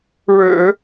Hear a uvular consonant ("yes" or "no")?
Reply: no